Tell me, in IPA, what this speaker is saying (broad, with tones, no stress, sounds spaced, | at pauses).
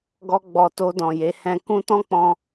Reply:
ɡ ɔ˦ ɡ͡b ɔ˧ t o˧ d ɔ̃˨ j e˨˦ h ɛ̃˧ k ũ˦ t ɔ̃˦ k͡p ɔ̃˧